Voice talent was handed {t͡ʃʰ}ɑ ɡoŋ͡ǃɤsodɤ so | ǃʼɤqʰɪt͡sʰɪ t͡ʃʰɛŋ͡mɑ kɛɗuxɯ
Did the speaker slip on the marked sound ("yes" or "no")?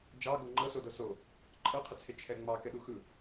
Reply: yes